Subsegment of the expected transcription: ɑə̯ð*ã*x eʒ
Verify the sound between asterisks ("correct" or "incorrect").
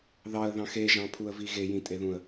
incorrect